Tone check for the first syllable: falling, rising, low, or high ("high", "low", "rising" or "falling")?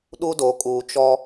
high